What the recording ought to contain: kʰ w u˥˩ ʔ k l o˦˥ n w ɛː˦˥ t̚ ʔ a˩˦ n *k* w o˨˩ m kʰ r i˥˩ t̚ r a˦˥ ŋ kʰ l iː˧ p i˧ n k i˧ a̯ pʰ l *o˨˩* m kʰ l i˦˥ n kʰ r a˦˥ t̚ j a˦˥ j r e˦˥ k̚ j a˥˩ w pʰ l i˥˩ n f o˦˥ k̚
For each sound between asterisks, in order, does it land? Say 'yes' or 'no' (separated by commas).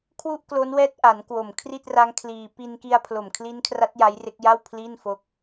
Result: yes, yes